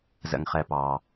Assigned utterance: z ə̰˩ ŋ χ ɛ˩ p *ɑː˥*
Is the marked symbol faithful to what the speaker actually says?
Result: no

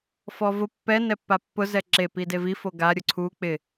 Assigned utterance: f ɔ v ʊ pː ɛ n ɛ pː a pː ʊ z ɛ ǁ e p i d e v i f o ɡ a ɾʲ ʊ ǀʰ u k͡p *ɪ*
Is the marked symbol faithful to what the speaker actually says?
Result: yes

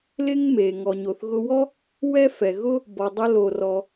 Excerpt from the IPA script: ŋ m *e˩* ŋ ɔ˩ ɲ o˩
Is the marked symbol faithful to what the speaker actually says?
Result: yes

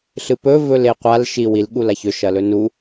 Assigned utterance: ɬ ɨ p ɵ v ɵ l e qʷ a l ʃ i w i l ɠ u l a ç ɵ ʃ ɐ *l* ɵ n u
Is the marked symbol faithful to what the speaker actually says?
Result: yes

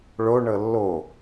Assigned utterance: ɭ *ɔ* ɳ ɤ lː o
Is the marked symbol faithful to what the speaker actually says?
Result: no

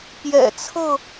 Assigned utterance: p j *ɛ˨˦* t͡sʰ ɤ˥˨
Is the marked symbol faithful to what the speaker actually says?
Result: no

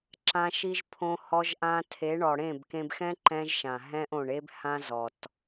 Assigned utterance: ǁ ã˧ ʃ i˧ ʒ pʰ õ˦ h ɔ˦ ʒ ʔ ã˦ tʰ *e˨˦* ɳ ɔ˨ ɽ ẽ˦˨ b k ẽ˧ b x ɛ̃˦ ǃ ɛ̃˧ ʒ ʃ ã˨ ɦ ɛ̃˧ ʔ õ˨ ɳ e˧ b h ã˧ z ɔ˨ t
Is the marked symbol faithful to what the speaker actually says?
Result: yes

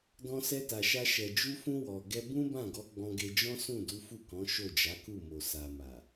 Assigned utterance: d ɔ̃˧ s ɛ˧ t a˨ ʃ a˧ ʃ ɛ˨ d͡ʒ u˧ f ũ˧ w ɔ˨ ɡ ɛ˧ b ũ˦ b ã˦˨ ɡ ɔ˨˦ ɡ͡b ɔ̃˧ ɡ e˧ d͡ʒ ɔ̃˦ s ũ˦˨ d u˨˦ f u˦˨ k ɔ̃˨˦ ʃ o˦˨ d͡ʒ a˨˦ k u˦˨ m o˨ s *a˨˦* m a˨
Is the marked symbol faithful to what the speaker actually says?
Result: no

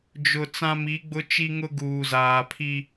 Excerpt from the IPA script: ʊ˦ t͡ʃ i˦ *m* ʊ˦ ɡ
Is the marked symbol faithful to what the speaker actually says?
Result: no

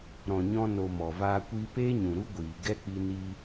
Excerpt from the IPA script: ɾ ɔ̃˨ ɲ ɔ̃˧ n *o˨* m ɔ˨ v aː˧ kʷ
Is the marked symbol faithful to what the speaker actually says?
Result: yes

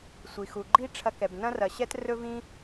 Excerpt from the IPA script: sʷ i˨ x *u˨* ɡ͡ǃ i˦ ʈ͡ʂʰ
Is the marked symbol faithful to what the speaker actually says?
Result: yes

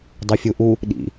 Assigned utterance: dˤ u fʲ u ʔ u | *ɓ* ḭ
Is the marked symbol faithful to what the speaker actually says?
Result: no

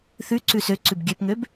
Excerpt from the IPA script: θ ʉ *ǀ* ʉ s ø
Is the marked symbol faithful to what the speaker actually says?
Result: yes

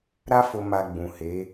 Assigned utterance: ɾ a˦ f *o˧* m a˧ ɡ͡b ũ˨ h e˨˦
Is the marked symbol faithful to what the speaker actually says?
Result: yes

